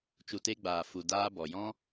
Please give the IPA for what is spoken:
t͡ʃu˨te˧ɡ͡baː˨ fu˨ daː˧bɔ˨jɔ̃˦

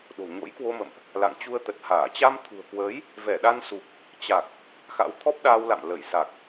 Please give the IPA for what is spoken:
ɗo̤˨˩ɲo̰˧˥jkwo˧mə̰˧˨mʔ | la̰˧˨ŋ t͡ɕu˧ə̯t̪ə˨˩t̚haː˧˩ t͡ɕa˧mt̪ʰṳ˨˩ə̯kwəː˨˦j | vɛ˧˩ɗa˧n su˨˩k̚ | t͡ɕa˨˩k̚ | xa̰˧˥wt̪ʰɔ˦˥p̚ɗaː˧wla̰˧˨m lə˧˩jsa˨˩k̚

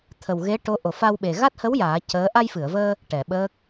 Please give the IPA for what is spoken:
t̪ʰə˨˩wɣe˧˥ʈo˧˥ ʔo˨˩ fa˧wɓe˨˩ ɣa˦˥t̚hə˧˥w jaː˨˩˦ cəː˧˥ ʔa˧jfɨ˨˩˨ə̯vəː˧ | ʈɛ˨˩˨ɓəː˦˥k̚

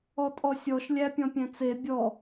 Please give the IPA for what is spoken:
ɔtʼɔsʲɔʃ lʲæpʲɔ̃pʲɛ̃t͡se bʲɔ

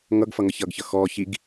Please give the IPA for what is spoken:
ŋʌɡfʌ ŋʌçʌɡçʌ xɔ çiɡ

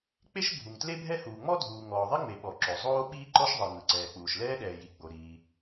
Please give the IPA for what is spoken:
k͡pe˥ʃbʱu˩ŋ tle˥bʱɛ˥huː˩ ŋ͡mɔ˥dʱuː˩ ŋɔː˩ðˤi˥ŋ͡me˩ɓɔ˩ ǁo˩zˤoː˥ ɓiː˥ǃɔ˥ʃðˤɤ˩ ŋɯ˩ǀɛː˩k͡puː˩ʃ lɛː˥ɗɛː˩ji˩ ɡ͡bo˩ɾiː˩

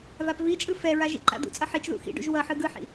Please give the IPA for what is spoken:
vapvit͡ʃʼɯ fɛɹa ʒḭǃa̰d̪ṵt͡sʼʌ ħit͡ʃðṵ xḭɖṵʒ wʌħɯ ɡɯħḭ

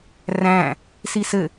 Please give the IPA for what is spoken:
ræ̃ | sisɘ

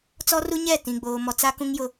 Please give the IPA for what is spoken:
t͡sɔ˦ru˦ɲɛ˦˨ tĩ˨ɡ͡boː˨mɔ˨t͡sa˦ kũ˦ŋjʊ˦

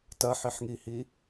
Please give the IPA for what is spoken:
tɐħiħŋihi

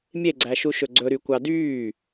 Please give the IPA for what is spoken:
mʲeɡ͡ǀæʃu ʃɵɡ͡ǀɵ ɾykʷɑdyː

